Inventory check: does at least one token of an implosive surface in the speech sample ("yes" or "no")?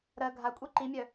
no